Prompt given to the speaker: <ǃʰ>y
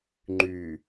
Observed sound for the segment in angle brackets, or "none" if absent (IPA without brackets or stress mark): ŋ͡ǃ